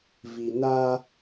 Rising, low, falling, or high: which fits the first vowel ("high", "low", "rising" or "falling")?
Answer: low